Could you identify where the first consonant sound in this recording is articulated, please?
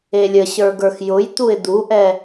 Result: alveolar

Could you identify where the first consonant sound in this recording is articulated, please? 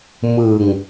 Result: labial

